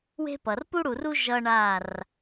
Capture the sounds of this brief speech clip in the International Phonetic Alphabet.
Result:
w e̤˦ p ʌ˨ r p u˦ ɽ u˨ r u˦ ʒ ʌ˦ ɳ a˦˨ r

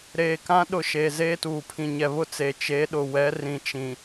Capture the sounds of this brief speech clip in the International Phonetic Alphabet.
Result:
ɾ eː˨ k ã˦ ɗ ʊ˦˨ ʃ eː˨ z eː˦ t uː˨ pʰ ĩ˨ ɲ ɛ˨ β ʊ˦ t͡s e˨ t͡ʃ e˨˦ ɗ ʊ˨ w ɛ˨˦ r ĩ˨ t͡ʃ ĩ˨

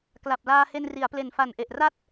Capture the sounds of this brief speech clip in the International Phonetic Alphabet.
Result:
k l a˨˩ p̚ l aː˧ h e˧ n r i˩˦ a̯ p l e˨˩ n f a˨˩ n ʔ e˨˩ ʔ r a˥˩ t̚

